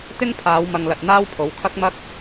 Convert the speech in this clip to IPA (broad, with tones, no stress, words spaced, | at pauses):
t̪ɪ˥ŋpʰaː˨˧w mɐ˨ŋlɐ˨t̚ n̪aː˥wpʰo˨˥wkʰɐ˥k̚mɐ˥k̚